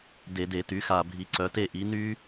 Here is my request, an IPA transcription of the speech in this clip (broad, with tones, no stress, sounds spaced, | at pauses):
d e˧˩˧ d e˧˩˧ t y˩˥ x a˨˩ bʱ i˩˧ ǀ œ˩˧ t e˥˩ ʔ i˩˥ n y˦˥